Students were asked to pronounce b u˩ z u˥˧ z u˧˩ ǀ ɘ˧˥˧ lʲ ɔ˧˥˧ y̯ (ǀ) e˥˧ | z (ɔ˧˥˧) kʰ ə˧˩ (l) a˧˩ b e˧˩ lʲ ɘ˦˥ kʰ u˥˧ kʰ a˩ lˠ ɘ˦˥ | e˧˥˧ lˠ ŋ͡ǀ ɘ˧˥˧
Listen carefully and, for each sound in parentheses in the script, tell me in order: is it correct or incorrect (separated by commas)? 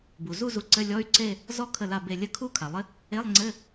correct, incorrect, correct